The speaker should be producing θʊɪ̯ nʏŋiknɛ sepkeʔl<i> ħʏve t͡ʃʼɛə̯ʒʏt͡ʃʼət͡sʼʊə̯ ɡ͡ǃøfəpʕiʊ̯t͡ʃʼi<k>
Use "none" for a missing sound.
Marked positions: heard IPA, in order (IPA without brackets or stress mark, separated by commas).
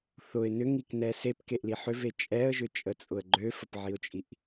i, ʔ